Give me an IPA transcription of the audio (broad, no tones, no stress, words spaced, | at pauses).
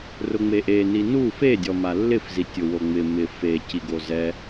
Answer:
rʊŋ͡meʔeni nu fedʲɔ malːɪfzi tʲʊwoŋ͡mɪ mɪ fe ciɡozɛ